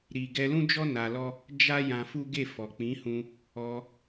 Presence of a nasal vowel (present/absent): present